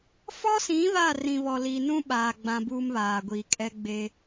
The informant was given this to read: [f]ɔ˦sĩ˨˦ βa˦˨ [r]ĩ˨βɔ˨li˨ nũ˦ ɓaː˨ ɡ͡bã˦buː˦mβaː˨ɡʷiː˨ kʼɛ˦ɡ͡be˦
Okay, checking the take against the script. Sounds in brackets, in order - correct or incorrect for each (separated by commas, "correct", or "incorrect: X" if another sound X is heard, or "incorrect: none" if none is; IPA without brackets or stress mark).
correct, correct